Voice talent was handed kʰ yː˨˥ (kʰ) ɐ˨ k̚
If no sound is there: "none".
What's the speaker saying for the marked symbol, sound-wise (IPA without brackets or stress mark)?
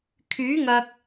ŋ